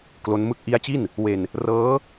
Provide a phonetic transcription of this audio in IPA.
k l o˦˥ n m ɯ˥˩ k̚ ʔ i˦˥ a̯ t͡ɕ i˥˩ n | w e˧ n | r ɤː˦˥

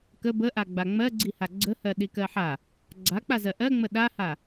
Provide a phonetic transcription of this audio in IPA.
k ə b ə ʔ a ɡ͡b a ŋ͡m ɜ ɡ͡ǀ i h a ɡ͡ǀ ə h ɜ ɗ i k ɜ ħ a | ɡ͡ǀ a k͡p a z ɜ ʔ ɜ ŋ͡m ə ɗ a h a

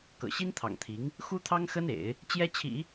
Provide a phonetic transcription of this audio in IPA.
k ɤ̰˨˩ ɕ i˥ n t̪ʰ ɑ̰˨˩ ŋ t̪ʰ i˧˥ ŋ | x u˥ t̪ʰ ɑ˥ ŋ x ə˥ n ḛ˨˩˦ ɪ̯ | t͡ɕ j ɛ˥ t͡ɕʰ ḭ˨˩˦

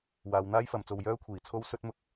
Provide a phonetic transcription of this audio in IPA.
w aː˨˧ w n̪ aː˥ j f ɐ˨˧ m t͡s o˧ w j œː˥ kʷʰ iː˨˩ t͡sʰ o˥ w s ɵ˥ t̚ m ʊ˥ k̚

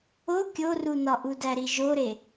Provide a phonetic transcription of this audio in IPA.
o kʲ o r u n ɒ ʔ u d æ ɾ i ʒ o ɾ e

